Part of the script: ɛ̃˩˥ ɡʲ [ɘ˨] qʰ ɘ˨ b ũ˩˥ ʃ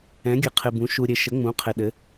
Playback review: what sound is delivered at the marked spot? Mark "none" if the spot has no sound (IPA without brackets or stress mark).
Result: ɘ˨